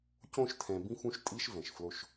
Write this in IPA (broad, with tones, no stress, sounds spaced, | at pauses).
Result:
c õ˦˨ ʃ tʰ ɛ̃˨ b ĩ˦ f ũ˦ ʃ tʼ i˦ ʃ v ɛ̃˨ ʃ f l o˦ ʃ